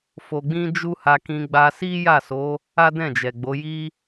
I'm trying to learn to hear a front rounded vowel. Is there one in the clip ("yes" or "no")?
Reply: no